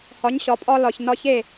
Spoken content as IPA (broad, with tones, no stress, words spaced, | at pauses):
hɒ˩˥ɲ ɕɒ˩pʼɒ˧ lɒ˩ç nɒ˧çe˥˩